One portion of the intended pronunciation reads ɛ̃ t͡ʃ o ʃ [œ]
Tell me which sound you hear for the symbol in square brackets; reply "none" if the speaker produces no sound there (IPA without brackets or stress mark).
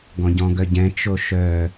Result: œ